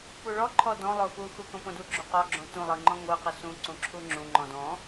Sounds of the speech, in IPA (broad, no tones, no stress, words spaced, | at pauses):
puɭɔ ǃʰɔdɔ̃ lˠoxu xukõpõdu ɡ͡ǁuqɔ ɡ͡ǁõtũ lˠɯŋ͡ǃɔ̃ŋʷɯ qɯsũ ǀũǁʰuŋ͡ǁũ ŋ͡ǃɔ̃dɔ̃